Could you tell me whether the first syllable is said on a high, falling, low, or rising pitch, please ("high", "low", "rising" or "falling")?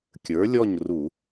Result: rising